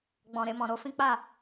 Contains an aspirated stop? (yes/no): no